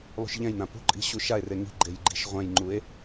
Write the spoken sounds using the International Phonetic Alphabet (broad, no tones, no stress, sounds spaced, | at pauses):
lˠ ṳ ʃ ʎ ɛ̃ j n ã p ṳ ǃʼ i̤ ɕ u ʃ a e̯ r e ŋ i̤ ɡ͡ǃ e j ɡ͡ǃ i̤ ʃ ʁʷ ɛ̃ j ŋ͡ǃ u e̯